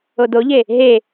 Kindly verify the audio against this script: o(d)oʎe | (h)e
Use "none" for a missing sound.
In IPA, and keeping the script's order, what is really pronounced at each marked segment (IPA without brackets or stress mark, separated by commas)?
d, ɦ